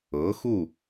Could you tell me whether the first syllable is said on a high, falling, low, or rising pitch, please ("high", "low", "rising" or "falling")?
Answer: rising